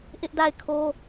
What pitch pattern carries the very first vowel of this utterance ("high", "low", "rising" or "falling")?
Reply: high